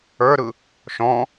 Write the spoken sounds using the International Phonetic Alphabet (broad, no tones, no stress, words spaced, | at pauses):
ə˞ɾɯ | ʃɔ̃